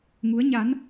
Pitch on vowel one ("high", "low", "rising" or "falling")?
rising